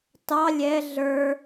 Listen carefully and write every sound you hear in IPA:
t ɑ lʲ ɛ ɮ ə˞

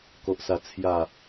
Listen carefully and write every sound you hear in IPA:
k o˨ ʔ s a˨˩ t͡sʰ j a˨˩

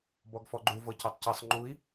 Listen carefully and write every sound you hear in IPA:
b ɔ ɡ f ɔ ɡ͡ǃ u v ɤ c o tˤ c ɨ sˤ ŋ͡ǃ u i̯

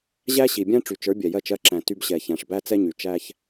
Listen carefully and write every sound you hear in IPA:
ʑ æ˦ ɕ i˨ bʲ æ̃˦ ʈ͡ʂ y˨ t͡ʃ ə˞˨˦ bʲ ɛ˨ j ɜ˦˨ t͡ʃ ɜ˦˨ ǁ æ̃˨ t y˦ b ɕ ɛ˨ ç æ̃˨ ʂ b æ˦ t͡s ɛ˦ ɲ y˨ t͡ʃ æ˦ ç

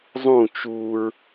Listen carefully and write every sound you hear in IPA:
zˤ ũ t͡ʃ u ɹ

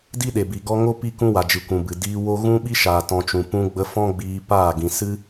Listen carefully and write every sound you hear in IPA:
d i˦ ɗ e˨ b i˨ ɡ ɔ˦ ŋ o˦ p i˦ k ũ˦ w a˨ d͡ʒ ɨ˨ kʷ ũ˨ b ɨ˨ d iː˧ w o˦ ɣ ũ˦ ɓ i˦ ʃ aː˨ t ɔ̃˧ t͡ʃ ũ˨ p ũ˧ ɡ͡b ə˧ f ɔ̃˦ ɡ͡b iː˧ p aː˦˨ ɡ ĩ˨ s ɨ˦

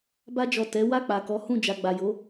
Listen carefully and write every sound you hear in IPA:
b a˧ d͡ʒ ɔ˨ t ɛ˨˦ w a˦˨ k͡p a˨ k ɔ˨˦ h ũ˦˨ d͡ʒ a˨ ɡ͡b a˨ j o˨˦

